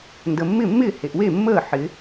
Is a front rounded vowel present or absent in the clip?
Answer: absent